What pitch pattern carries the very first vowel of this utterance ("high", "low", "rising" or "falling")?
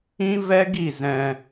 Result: high